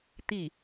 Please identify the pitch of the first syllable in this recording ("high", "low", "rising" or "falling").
falling